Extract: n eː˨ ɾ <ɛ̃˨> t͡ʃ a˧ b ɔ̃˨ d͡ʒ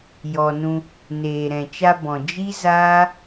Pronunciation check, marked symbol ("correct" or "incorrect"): correct